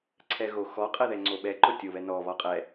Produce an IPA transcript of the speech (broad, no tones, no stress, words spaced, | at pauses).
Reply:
ǀʰɛɣoxɔ qʼɛðɛŋ͡ǀoɓɛ ǃotʲoβɛnɔ βɒqʼɛ